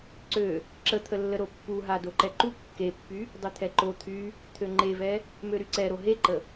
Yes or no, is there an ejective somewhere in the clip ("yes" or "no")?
no